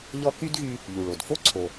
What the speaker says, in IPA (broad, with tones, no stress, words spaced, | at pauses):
ʎɔ˥ ky˥dɣy˧ | ʎu˩ɭo˩dfo˥ ǀʰo˩